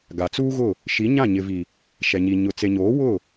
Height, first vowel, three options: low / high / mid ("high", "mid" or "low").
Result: low